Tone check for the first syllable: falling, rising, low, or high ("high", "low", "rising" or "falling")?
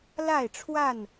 falling